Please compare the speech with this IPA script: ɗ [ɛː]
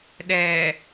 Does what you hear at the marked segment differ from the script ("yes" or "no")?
no